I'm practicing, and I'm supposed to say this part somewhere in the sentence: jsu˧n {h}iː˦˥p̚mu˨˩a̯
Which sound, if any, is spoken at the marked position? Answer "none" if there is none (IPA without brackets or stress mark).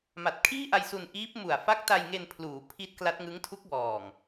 ʔ